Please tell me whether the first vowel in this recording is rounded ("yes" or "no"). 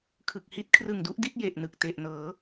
no